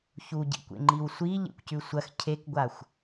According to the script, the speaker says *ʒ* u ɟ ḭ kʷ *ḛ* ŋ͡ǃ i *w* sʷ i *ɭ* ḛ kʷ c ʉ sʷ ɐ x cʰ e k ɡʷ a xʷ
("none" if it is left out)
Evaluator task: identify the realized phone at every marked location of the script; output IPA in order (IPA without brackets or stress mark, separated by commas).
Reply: ç, ḛ, w, ʎ